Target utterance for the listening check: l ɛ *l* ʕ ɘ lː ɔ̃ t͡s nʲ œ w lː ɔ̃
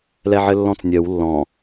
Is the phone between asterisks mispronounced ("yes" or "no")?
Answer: yes